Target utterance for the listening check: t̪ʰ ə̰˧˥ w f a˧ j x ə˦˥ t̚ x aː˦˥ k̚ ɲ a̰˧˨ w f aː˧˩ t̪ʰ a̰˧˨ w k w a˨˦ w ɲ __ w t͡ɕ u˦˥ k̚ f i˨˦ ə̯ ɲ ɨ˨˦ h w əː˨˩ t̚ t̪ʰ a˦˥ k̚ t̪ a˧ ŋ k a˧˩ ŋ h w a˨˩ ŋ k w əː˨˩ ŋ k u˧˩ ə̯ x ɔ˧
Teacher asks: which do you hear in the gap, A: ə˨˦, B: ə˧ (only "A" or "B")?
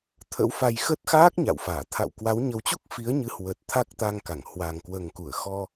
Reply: A